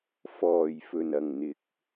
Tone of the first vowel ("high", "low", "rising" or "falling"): low